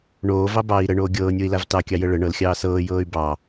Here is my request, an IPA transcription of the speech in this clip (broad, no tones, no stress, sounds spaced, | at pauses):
ɳ oː v ɑ b ɑː i̯ ɾ ə ɳ oː ɡʲ ɤː nʲ o i̯ l a v t ɑ kʲ ɑ j ə ɭ ə ɳ ɤ l xʲ ɑː s ɤː j ɤː y̯ b ɑ